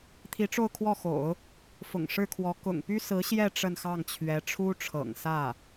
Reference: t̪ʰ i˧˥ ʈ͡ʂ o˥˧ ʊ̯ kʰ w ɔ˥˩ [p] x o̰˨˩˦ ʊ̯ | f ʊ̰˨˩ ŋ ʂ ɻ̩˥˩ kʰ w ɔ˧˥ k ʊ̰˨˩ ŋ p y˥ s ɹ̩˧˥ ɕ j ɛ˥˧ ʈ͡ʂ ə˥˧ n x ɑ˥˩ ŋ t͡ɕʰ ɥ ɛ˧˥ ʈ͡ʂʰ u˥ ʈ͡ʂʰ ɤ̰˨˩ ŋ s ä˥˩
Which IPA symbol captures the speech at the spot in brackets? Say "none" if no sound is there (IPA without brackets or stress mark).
none